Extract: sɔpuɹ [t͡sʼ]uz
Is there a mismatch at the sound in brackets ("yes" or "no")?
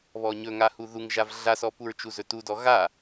yes